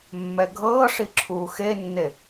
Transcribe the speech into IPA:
mː ɛ ɡʱ ɤː ʂ i ǁʰ uː x e nː e

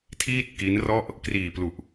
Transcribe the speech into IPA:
tʰ iː˥˩ t̚ k i˦˥ n r ɔ˥˩ ʔ | k r iː˨˩ p l u˨˩ ʔ

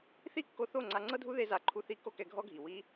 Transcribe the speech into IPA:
θ i˦ kː o˧ θ o˦˨ ŋ͡ǀ a˧ ŋ͡ǀ ɤ˦ dʱ u˦ ð e˦ z a˧ ǃʰ u˦ θ i˦ k o˦ k ɛ˧ ɡʱ ɔ˦ ɡʱ i˨ w i˦

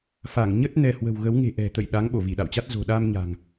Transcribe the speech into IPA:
f a˧˩ ŋ ɲ ə˦˥ t̚ n ɛ˧ h w ə̤˨˩ w ɣ ə˨˦ w ŋ e̤˨˩ ʔ ɛ̤˨˩ t̪ ə̰˧˨ j ɗ a˨˦ ŋ ɓ o˧˩ v i˧˩ ɗ a̰˧˨ w t͡ɕ a˦˥ t̚ z o̤˨˩ ɗ a˧ m ɲ a̤˨˩ ŋ

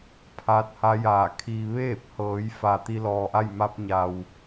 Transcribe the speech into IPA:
pʰ aː˧˥ t̚ h a˧˥ j aː˧˩ kʰ iː˧ ʋ eː˥˨ p̚ h ɤː˩˧ j f a˩ t̪ i˧ l ɔː˩ ʔ a˥˨ j m a˧ p̚ ɲ a˩ w

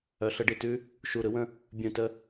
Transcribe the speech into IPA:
œ˩˧ ɬ ə˩˧ ɖ i˨˩ t ʉ˦ | ʃ u˨˩ ɾ ɯ˦ w ə̃˦˨ | bʲ ũ˨˩ t ə˦˨

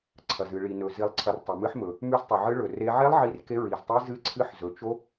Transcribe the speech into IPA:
ǀʰ ɐ˨ z ɨ˨ ɭ i˨ n ɵ˨ z i˨ lˠ ǀʰ ɐ˨ r tˤ ɨ˨ m ɨ˦˥ ħ m ɵ˨ | m ʉ˦˥ z tˤ ɵ˨ ʕ ɨ˦˥ ɭ ɵ˨ r e˦˥ ʕ e˦˥ lˠ ʕ i˦˥ r k e˦˥ ɹ i˨ z tˤ i˦˥ z ɨ˦˥ ǀʰ ɨ˦˥ ħ z ɵ˨ t͡ʃ o˦˥

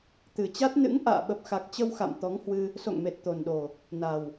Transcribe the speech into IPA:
t̪ ɨ˨˩ t͡ɕ a˦˥ t̚ n ɨ̰˧˥ ŋ ʔ a̰ː˧˨ ɓ ə˨˩ p̚ x a˨˩ k̚ t͡ɕ ə˧ w x a̰˧˨ m t̪ ɔ˨˦ ŋ h w ɨ˧ | s o̰˧˨ ŋ m e˨˩ t̚ t̪ o˨˩ n ɗ o˨˩ | n a˨˩ w

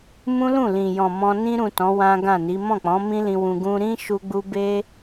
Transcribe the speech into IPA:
m ũ˦ l ũ˦˨ l ĩ˨ j ɔ̃˨ m ɔ̃˧ n ĩ˧ ɾ ũ˨ t ɔ̃˨˦ w ã˦ ɡ ã˦˨ n i˨˦ m ɔ̃˦˨ k͡p ɔ̃˨˦ m ĩ˦ l ĩ˧ w ũ˧ ɡ ũ˦ ɾ ĩ˦ ʃ u˧ ɡ͡b u˧ b e˦

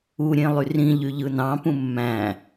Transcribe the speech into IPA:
u ɾʲ ẽ lˠ y r ĩ ʎ y ʎ ɯ n ɑ̃ p ũ mː æ̃

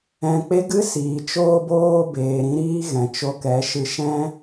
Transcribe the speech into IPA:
ɛ̃˧ k͡p e˦ ɡ ɨ˦ s iː˨ t͡ʃ oː˧ b oː˧ b eː˨ ɾ ĩ˧ ɾ iː˧ ɣ ɛ̃˨ t͡ʃ o˧ k ɛ˨˦ ʃ ɨ˧ ʃ ɛ̃˦

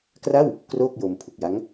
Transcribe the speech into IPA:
k r a˥˩ w | k r oː˥˩ k̚ j o˧ m pʰ u˨˩ k̚ j a˦˥ ŋ

